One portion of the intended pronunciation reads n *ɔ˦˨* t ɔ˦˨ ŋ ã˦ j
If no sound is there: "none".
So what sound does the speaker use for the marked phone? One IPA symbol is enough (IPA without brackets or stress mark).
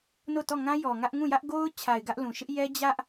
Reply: o˦˨